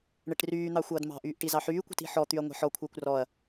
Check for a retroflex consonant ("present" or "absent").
present